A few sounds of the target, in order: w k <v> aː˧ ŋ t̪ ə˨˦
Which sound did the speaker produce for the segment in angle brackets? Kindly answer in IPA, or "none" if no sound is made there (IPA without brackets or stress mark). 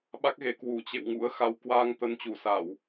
w